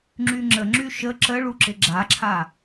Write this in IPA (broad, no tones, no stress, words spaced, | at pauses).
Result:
ŋ͡ǁyŋ͡ǁəŋ͡ǁy ʃə ǁəɭuǁɪ ɡ͡ǁaǁʰa